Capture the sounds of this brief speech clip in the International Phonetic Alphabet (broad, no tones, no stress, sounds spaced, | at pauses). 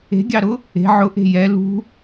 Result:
e̤ ɡʲ ɑ ɾ ʊ | e̤ ʕ ʊ ʔ e̤ j ɛ l ṳ